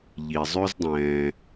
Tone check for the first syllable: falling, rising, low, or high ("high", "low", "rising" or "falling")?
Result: low